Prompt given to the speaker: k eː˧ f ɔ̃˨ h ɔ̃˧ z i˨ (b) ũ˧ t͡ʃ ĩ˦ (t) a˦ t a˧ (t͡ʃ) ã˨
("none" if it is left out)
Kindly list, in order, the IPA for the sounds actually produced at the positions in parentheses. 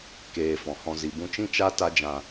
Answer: b, t͡ʃ, d͡ʒ

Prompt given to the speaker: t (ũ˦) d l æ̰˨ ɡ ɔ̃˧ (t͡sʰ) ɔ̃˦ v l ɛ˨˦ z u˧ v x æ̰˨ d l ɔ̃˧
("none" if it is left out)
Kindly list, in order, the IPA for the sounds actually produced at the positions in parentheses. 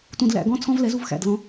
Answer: ũ˨, t͡sʰ

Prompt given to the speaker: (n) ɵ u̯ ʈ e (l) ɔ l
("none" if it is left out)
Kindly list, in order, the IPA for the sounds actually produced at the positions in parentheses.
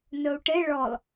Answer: n, ɭ

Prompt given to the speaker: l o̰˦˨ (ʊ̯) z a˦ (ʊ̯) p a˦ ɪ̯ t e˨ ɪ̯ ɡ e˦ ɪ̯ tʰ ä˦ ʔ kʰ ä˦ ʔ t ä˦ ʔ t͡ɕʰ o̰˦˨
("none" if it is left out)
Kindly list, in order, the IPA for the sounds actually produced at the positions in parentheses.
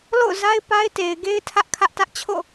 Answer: ʊ̯, ɪ̯

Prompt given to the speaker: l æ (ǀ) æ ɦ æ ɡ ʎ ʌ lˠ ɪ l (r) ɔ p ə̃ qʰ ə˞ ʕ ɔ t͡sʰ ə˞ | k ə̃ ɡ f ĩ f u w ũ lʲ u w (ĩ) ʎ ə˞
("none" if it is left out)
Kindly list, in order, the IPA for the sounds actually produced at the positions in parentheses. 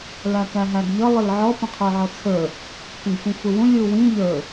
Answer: k, ʕ, ĩ

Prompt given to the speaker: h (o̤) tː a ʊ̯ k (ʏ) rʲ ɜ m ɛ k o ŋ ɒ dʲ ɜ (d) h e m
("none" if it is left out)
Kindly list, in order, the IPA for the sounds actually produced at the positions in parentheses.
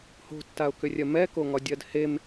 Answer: o̤, ʏ, d

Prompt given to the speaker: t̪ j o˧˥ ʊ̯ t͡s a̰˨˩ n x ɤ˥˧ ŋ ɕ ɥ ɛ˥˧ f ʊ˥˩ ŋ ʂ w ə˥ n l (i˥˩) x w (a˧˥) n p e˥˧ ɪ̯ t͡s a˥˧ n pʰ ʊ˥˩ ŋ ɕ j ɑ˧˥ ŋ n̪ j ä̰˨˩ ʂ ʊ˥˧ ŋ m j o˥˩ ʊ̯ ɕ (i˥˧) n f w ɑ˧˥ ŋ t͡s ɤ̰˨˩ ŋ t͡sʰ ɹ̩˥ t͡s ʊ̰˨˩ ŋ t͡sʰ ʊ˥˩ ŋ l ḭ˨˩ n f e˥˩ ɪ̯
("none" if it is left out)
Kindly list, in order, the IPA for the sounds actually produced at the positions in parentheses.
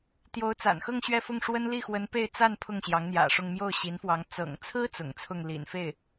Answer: i˥˩, ə˧˥, i˧˥

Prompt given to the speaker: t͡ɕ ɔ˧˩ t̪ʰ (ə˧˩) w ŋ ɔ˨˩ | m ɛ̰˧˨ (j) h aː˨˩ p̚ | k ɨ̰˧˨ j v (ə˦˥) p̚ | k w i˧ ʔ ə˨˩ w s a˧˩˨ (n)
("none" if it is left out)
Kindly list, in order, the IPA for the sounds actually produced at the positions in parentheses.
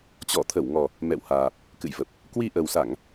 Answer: ə˧˩, w, ə˨˩, ŋ

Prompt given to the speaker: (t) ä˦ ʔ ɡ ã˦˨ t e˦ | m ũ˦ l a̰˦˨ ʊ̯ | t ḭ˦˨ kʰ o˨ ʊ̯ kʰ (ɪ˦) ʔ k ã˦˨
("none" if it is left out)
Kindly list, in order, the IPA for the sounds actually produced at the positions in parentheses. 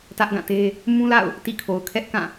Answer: t, ɛ˦

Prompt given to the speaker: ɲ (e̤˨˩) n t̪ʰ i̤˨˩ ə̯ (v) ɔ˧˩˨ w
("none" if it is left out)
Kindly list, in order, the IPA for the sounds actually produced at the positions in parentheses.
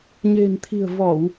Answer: e̤˨˩, v

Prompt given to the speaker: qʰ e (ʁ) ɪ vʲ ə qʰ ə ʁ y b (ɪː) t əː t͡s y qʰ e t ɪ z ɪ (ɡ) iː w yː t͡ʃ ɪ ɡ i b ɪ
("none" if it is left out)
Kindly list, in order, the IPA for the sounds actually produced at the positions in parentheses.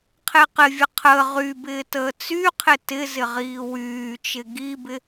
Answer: q, ɪː, ʁ

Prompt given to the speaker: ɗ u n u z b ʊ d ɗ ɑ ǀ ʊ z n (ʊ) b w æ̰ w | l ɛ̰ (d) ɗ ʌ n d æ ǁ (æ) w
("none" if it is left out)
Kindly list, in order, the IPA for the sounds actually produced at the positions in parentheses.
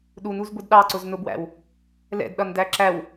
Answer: ʊ, d, æ

